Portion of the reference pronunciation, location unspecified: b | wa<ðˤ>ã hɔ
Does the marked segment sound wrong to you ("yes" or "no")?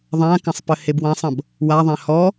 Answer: no